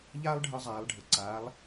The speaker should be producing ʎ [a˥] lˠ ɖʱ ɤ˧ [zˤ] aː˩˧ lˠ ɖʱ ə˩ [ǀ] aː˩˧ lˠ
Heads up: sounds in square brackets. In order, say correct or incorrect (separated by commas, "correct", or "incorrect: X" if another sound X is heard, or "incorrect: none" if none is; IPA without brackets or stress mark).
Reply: correct, correct, correct